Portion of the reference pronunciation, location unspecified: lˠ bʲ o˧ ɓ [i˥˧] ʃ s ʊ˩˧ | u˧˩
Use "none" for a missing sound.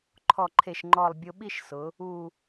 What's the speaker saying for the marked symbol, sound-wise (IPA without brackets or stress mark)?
i˥˧